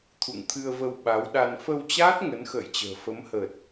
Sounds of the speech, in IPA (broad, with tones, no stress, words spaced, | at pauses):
t̪ʰṵ˧˨ŋt̪ʰɨ˧ə̯və˧w ɓa˨˦wɗa˧n fə˧wt͡ɕaː˦˥t̚ ŋə˨˦nxə̰ː˧˨jt͡ɕə̤ː˨˩ fə˨˦mhəː˨˩t̚